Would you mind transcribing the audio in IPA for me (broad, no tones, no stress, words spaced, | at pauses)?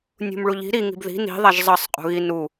nʲṳmɭuʎi̤ ɾi ŋi̤bði̤ ni̤ðˤaʒ zˤʌsˤ qʼṳɣi nu